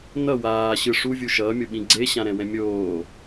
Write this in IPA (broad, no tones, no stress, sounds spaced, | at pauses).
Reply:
n ʌ w aː ɕ ɯ ʂ u vʲ u ʃ ʌː mʲ o ɓ ĩ ɡ͡ǀ e ɕ ã ɾ ɛ̃ w ɛ̃ mʲ oː